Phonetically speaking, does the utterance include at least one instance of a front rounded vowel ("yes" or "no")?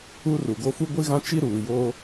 no